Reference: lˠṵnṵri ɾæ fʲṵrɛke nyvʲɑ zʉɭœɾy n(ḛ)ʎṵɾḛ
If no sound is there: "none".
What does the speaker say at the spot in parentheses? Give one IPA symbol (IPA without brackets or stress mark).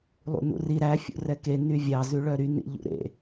ḭ